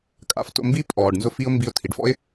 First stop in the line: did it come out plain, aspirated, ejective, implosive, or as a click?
ejective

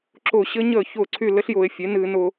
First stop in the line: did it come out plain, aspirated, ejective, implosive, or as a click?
click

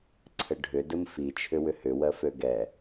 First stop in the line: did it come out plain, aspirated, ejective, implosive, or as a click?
click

